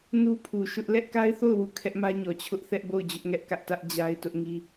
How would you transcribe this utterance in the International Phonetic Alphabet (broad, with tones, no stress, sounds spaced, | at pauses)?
n u˦ pʰ u˨ ʃ ʊ˦ ʔ l ɛ˦ ʔ k a˦ ɪ̯ θ o˦˨ ʊ̯ w u˦˨ kʰ ɛ˦ ʔ m ä˦ ɲ ɔ˨ t͡ɕʰ ʊ˦ ʔ θ ɛ˦ ʔ b o˦˨ ʊ̯ d͡ʑ ʊ˦ ʔ ŋ ɛ˦ ʔ k ä˦ ʔ t ä˦ ʔ d͡ʑ a˦ ɪ̯ t ʊ˦ ʔ ŋ i˦